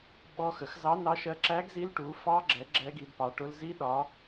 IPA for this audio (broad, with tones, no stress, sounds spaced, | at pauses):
ɓ ɔ˦˥ x ə˨˦ x z ɑ˦˥ n ɑ˦˥ ʃ ɜ˦˥ ǁ æ˦˥ ɡ z i˦˥ l ʈ u˨˦ f ɑ˦˥ ɡ͡ǁ ɛ˨˦ ɡ͡ǁ ɛ˦˥ ɡ i˨˦ d p ɑ˨˦ ʈ ʊ˦˥ l z i˦˥ ɗ ɒ˨˦